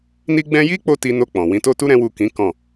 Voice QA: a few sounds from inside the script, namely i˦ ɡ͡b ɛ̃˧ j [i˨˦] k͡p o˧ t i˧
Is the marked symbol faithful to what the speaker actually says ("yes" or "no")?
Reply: no